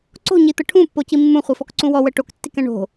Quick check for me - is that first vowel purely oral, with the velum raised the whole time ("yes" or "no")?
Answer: yes